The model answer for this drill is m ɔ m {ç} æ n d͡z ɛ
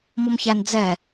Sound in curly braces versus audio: correct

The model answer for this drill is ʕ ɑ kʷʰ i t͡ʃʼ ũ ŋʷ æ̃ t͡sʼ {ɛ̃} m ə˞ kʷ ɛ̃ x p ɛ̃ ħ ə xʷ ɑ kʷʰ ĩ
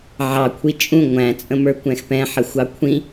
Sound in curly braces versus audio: incorrect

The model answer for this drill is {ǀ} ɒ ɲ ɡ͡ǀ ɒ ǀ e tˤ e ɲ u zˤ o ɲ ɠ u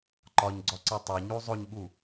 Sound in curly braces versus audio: incorrect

